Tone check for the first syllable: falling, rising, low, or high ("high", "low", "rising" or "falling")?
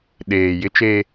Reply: low